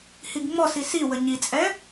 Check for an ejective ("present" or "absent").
present